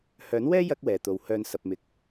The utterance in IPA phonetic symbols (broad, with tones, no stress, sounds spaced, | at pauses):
h œː˨˥ n w ɛː˥ j ɐ˥ k̚ w ɛː˨ t̪ o˨ w h œː˨ n s ɐ˨ p̚ m ɪ˨ k̚